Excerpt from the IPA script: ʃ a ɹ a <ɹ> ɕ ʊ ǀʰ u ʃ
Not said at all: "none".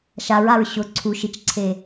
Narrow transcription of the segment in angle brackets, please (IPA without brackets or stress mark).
ɹ